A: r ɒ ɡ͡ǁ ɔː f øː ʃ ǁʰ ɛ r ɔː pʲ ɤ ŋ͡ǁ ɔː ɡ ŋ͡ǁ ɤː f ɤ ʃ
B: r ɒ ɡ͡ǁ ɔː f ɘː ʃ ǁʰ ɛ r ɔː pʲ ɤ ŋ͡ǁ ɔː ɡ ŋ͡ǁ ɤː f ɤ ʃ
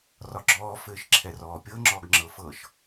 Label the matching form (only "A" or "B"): B